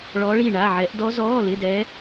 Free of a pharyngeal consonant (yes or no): no